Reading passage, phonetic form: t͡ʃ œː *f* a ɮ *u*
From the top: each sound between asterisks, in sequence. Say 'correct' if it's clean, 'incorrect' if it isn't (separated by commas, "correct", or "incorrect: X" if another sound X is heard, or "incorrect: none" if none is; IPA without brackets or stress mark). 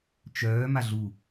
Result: incorrect: m, correct